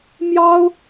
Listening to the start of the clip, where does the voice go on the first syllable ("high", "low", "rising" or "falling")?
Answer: high